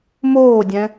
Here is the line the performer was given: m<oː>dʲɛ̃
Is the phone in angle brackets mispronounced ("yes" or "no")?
no